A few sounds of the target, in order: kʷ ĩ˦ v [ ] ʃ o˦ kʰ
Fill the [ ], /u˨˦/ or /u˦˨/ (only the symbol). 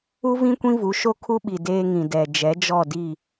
u˨˦